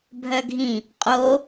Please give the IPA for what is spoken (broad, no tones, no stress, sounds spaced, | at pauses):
bʱ œ ɡʱ ĩ | qʼ o